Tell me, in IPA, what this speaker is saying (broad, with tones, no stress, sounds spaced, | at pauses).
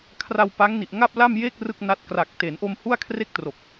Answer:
kʰ r a˧ w p a˦˥ ŋ n i˨˩ ʔ ŋ a˥˩ p̚ l a˥˩ m j e˥˩ k̚ r ɯ˥˩ k̚ n a˦˥ t̚ k r a˨˩ k̚ t e˩˦ n ʔ o˧ m h u˥˩ a̯ kʰ r e˥˩ k̚ t r o˨˩ k̚